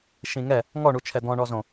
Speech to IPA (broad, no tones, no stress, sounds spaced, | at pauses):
ʃ ĩ ŋ ɛ | ŋ ɔ ɳ u t͡ʃʰ ɛ d̪ ɔ̃ ɳ ɔ z õ